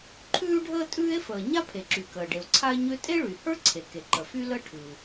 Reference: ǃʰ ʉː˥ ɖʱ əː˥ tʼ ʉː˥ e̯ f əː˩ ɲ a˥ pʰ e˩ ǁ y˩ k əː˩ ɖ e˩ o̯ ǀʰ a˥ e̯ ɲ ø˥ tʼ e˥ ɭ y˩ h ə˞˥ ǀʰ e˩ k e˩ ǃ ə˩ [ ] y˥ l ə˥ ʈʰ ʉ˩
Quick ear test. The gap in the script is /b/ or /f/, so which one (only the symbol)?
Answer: f